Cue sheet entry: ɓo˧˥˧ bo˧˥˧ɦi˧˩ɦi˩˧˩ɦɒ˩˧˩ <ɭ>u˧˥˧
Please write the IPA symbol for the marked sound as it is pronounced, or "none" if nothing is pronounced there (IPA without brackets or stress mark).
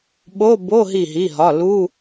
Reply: l